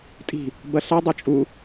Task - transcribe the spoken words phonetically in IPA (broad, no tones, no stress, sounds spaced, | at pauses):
tʼ i̤ | b ɐ ɬ a dˤ ɨ t͡ʃʼ u